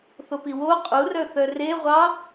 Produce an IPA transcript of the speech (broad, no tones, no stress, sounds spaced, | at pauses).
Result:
θ o p i w o qʼ u r œ θ œ r e ʁʷ ɑ